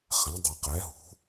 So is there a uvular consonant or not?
yes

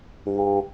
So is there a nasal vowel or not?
yes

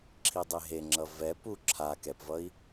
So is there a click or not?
yes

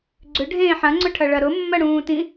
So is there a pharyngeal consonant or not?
yes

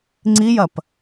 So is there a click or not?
yes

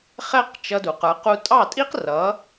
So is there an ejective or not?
yes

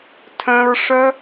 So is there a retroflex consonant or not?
yes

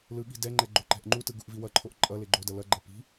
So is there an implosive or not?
yes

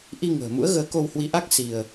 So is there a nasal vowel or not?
no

